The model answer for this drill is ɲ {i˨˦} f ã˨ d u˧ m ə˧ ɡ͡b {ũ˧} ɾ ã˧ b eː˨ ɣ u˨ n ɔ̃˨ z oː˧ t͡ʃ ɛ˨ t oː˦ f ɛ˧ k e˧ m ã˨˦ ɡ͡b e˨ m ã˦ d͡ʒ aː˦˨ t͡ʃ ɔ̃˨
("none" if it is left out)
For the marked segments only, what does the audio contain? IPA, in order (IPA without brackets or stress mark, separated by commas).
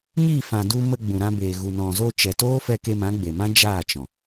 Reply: i˦˨, ũ˨